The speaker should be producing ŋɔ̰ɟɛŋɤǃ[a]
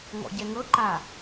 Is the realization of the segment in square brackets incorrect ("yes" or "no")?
no